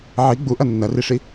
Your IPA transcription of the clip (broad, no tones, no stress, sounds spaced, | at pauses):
ʕ i ɡ͡b u ʔ ɐ nː ɐ r i ʂ i